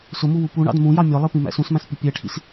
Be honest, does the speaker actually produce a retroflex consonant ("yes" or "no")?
yes